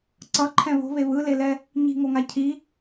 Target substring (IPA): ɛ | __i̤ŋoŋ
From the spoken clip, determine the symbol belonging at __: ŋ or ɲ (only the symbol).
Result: ɲ